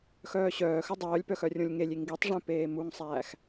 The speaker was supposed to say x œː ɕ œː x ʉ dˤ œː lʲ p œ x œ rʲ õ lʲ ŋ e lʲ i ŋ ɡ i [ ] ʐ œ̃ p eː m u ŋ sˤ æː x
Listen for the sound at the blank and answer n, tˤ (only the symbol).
tˤ